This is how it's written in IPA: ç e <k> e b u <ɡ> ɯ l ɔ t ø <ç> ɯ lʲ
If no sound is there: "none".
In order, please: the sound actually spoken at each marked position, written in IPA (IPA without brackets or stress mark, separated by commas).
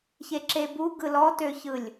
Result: ǁ, ɡ, ç